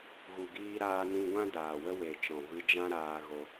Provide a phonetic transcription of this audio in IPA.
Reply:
ɣ u˨ ɡ iː˧ ɾ aː˧ n ĩ˧ ɡʷ ã˦ d aː˨ w ə˦ w e˨ t͡ʃ ɔ̃˨ v ɨ˧ d͡ʒ ã˦ ɾ aː˧ ɣ o˧

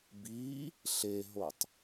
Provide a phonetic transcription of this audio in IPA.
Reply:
b i | ɬ e ɦ o tˤ

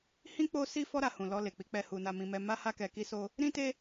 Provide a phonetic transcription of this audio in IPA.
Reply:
h ĩ˦ k͡p o˦ s i˦ f ɔ˦ ɾ a˧ h ũ˨ l ɔ˧ l e˨ k͡p i˨˦ k͡p ɛ˧ h u˧ n a˧ m ĩ˧ m ɛ˧ m a˦ h a˦ k ɛ˧ k i˧ s o˧ | ɾ ĩ˦ t e˦

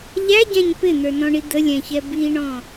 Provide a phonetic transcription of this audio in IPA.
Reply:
ʎ æ ɟ æ̃ ɲ p ɪ n̪ ə˞ n ɔ̃ ɳ i d̪ ə lʲ æ̃ ç ɛ b i ɳ ɔ̃

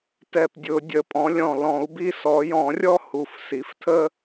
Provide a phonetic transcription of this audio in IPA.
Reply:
t ɛ˧˩ p dʲ ʊ˨˩˦ dʲ ə˨˩˦ pʼ ɔ̃˩˥ lʲ ɔ̃˧˩ l ɔ̃˨˩˦ u̯ b i˥ s ɔ˨˩˦ j ɔ̃˨˩˦ rʲ ɔ˥ h u˧˩ f s i˩˥ f tʰ ə˥

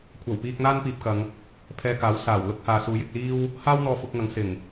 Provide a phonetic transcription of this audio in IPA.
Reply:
kʷʰ ɐ˨˩ w p iː˧ k̚ n̪ aː˥ n p iː˨ p̚ k ɐ˨˧ ŋ | pʰ ɛː˧ k aː˨˥ w s aː˨˩ w l ʊ˥ k̚ h aː˨ s uː˨˥ j ɪ˨ k̚ l iː˥ w | h aː˥ w n̪ ɔː˧ f ʊ˧ k̚ ŋ ɐ˨˥ ŋ s ɪ˨˩ ŋ

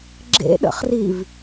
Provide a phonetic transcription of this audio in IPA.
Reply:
ɡ͡ǁ ḛ ɗ ə̰ χ r i v

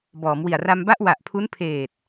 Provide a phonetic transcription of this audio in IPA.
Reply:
b ɔː˩˦ m w i˨˩ a̯ r a˧ m b a˥˩ ʔ w a˨˩ ʔ pʰ u˦˥ n pʰ eː˨˩ t̚

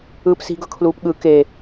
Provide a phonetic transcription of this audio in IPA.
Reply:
ɯː p s i̤ ɡ ɤ kʰ l uː p ɠ ɯ k e

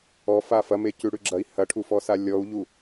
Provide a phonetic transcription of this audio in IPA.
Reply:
ɔ f a f ɐ m e c ʉ ɽ ʉ ɡ͡ǁ ɐ i̯ h ɐ ʈʰ u f ɔ s a lʲ ɔ u̯ ʎ u

